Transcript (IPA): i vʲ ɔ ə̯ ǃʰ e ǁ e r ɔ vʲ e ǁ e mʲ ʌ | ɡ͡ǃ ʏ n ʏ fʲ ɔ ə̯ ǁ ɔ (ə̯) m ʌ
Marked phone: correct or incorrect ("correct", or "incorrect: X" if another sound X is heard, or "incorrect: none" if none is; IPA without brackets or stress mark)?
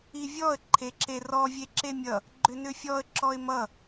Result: incorrect: ɪ̯